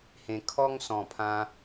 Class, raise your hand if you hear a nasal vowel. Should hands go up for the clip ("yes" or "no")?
yes